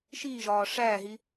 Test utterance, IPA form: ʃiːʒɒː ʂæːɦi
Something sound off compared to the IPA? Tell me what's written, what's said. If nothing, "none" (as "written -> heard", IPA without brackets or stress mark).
none